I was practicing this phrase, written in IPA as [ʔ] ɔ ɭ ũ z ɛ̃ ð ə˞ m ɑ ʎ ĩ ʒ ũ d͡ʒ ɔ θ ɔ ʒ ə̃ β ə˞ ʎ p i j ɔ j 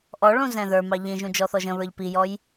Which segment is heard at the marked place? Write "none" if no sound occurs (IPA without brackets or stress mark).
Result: ʔ